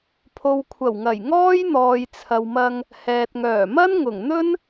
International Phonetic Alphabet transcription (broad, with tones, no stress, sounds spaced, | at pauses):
pʰ o˨ w kʷʰ ɐ˨˩ w ŋ ɐ˨˩ j ŋ ɔː˥ j n̪ ɔː˨ j t͡sʰ ɐ˨ w m ɐ˧ ŋ | h ɛː˨ t̚ ŋ œː˨˩ m ɐ˥ n ŋ ʊ˨˩ ŋ n̪ ɵ˥ n